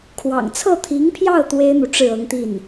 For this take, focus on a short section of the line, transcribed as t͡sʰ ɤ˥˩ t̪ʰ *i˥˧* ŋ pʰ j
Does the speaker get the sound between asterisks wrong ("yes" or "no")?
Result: yes